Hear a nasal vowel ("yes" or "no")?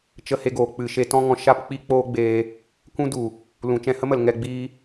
yes